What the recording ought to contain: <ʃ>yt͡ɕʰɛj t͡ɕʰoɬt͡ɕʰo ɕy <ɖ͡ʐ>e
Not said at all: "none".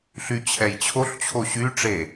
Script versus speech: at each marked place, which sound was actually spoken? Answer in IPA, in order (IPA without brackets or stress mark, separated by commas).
ɬ, ʈ͡ʂ